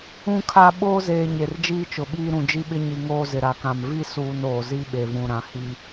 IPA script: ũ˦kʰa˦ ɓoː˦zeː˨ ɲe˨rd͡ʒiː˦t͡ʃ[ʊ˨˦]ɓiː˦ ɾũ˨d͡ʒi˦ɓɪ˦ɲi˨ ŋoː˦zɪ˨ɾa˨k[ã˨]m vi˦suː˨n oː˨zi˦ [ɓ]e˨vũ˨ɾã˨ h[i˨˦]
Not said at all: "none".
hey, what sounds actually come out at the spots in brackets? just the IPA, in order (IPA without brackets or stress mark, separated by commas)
ʊ˨, ã˨, ɓ, i˦